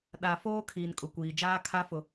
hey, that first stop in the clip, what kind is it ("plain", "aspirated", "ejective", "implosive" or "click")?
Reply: implosive